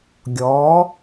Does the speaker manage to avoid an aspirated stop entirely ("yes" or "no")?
yes